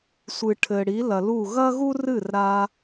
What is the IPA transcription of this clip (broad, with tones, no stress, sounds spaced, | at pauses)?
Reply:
sʷ ɨ˩ ʈʰ ɘ˩ ɽ i˩˥ l ɐ˩ l u˥˩ ɣ ɐ˥ ɣ u˥ r ɨ˥˩ r ɾ a˧